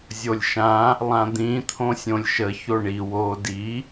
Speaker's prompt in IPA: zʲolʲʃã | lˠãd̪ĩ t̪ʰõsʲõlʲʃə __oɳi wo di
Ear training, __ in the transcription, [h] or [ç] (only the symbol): ç